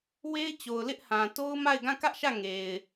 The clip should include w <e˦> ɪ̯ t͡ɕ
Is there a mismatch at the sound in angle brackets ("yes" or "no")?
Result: no